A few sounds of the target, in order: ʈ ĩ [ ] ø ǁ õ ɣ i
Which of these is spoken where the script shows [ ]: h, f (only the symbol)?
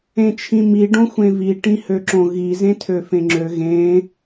h